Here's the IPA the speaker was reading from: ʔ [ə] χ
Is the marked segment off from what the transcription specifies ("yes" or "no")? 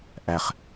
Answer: yes